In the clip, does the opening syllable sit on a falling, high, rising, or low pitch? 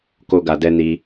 high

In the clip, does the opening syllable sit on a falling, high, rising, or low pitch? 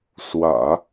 low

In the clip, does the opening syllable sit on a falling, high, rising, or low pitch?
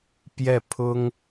falling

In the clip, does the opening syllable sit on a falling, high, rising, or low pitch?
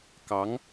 rising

